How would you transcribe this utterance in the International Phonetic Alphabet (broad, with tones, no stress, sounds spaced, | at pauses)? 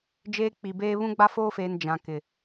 d͡ʒ eː˦ k͡p i˨ b eː˦ β ũ˦ ɡ͡b a˦ f oː˦ f eː˨ n d͡ʒ ã˨ k ɪ˨